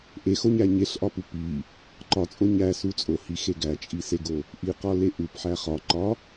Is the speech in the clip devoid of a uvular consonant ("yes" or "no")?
no